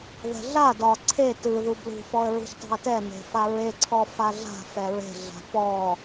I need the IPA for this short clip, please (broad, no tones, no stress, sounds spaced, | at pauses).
ð ɛ̤ ɮ a d ɒ ǀʰ e t ɯ ð u b l ṳ f ɔ ə̯ ɹ ṳ ç tˤ e̤ ə̯ t ɛ n e̤ f a ɹ e ǀʰ ɔ f a ɮ a̤ f ɛ ɹ e̤ ɮ a̤ p ɔ